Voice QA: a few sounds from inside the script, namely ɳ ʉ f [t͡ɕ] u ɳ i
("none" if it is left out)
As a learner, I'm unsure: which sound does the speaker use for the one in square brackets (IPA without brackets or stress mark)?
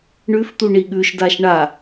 t̪